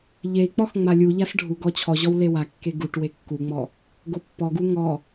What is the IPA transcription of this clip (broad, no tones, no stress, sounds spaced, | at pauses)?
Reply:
ʎ e i̯ k͡p ɔ x ŋ͡m a lʲ u ʎ a s ɖʱ u ɡ ɔ t͡ɕʰ ɔ ʑ ɔ w l e w a kː e ɡ u ʈ w e kː u ŋ͡m ɔ | ɡ o pː ɔ ɡ u ŋ ɔ